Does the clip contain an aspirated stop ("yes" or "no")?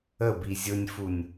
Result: no